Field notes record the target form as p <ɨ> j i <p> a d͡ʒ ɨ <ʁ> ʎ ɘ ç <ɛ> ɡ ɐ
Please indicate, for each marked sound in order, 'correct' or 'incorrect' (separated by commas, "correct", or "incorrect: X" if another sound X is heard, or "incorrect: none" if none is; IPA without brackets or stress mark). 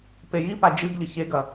incorrect: e, correct, incorrect: ɡ, incorrect: e